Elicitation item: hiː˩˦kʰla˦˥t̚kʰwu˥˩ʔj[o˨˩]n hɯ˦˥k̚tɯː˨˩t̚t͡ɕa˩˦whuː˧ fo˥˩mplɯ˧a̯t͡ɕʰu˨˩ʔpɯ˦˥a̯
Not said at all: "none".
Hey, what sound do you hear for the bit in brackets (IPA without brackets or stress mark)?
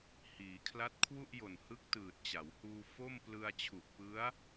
o˨˩